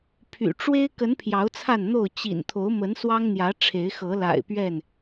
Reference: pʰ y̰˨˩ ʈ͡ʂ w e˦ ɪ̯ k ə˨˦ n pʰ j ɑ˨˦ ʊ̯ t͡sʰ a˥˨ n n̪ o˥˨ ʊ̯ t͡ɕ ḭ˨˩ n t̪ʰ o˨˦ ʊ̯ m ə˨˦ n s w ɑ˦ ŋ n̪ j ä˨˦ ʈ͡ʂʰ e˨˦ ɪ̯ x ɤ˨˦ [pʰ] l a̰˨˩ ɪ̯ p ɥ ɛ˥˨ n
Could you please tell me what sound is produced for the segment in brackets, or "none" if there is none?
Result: none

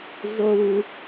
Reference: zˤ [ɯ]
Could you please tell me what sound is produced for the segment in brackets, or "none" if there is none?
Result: u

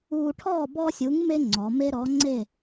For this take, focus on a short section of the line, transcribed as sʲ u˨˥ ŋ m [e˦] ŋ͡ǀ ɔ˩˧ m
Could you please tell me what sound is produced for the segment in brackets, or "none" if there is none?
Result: e˦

